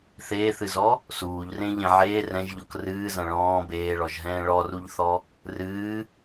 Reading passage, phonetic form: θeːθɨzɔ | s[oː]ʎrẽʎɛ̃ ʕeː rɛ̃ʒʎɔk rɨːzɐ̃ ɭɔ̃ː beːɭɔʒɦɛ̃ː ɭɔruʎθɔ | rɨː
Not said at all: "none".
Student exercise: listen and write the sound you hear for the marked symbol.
uː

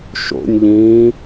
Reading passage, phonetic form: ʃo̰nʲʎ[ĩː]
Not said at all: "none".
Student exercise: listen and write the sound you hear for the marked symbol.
ĩː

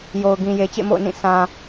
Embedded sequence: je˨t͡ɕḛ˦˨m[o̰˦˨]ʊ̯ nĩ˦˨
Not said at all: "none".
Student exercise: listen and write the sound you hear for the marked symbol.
o̰˦˨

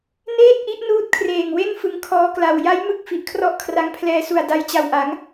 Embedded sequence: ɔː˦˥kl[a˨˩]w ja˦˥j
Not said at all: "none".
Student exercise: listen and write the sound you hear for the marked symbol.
a˨˩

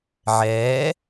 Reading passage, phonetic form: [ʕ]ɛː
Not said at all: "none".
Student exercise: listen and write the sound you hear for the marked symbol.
ʕ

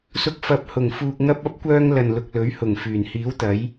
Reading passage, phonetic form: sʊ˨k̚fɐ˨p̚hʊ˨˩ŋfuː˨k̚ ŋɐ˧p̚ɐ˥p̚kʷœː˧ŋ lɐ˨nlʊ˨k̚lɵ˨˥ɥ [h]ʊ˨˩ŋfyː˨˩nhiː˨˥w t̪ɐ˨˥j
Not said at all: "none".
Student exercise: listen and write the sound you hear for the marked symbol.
h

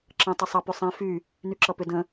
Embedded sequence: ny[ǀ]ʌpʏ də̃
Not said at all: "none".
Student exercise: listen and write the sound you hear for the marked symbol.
ǁ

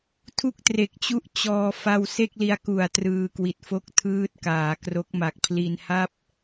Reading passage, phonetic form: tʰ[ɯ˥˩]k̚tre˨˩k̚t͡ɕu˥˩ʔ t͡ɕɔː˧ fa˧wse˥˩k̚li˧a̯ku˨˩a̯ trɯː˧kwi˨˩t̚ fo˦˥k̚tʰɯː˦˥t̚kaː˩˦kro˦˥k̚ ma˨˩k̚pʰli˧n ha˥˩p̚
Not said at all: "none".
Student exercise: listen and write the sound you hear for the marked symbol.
u˥˩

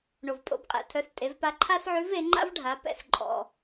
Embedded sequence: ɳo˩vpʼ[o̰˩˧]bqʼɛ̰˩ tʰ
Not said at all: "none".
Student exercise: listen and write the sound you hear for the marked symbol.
o̰˩˧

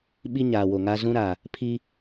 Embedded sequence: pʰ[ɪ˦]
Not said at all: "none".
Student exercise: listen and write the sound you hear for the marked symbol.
i˦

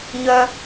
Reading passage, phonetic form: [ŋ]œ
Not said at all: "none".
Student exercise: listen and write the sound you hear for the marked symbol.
ɲ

